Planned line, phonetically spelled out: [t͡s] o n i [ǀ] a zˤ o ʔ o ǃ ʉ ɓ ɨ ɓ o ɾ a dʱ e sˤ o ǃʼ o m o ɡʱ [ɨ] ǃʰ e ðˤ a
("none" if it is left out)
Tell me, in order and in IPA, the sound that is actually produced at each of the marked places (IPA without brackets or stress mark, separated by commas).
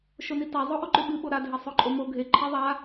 ʃ, t, e